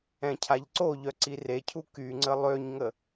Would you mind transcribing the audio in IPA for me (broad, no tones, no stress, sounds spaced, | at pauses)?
ɛ̃ cʰ a ʎ ǀ o ʎ œ ǀ i r e cʰ u k y ŋ͡ǀ ə lˠ ø ɲ ŋ ə